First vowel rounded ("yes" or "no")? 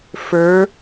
no